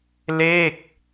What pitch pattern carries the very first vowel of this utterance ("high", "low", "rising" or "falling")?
falling